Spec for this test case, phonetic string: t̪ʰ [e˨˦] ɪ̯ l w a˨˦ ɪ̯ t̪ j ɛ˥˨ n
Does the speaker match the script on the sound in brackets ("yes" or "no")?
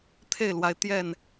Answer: no